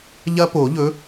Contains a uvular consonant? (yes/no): no